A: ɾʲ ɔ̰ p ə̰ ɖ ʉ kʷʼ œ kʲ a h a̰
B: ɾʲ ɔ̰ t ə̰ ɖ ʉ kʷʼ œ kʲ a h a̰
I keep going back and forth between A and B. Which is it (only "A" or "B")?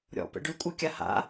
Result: A